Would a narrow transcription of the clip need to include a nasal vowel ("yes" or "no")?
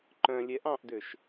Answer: yes